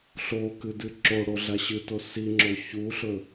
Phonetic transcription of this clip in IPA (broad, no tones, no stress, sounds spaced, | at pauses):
ɬ o k ɨ d ɨ ǁ o ɽ o ɮ a ɕ ɨ t o s i ŋ͡ǁ o ç u ɬ ɵ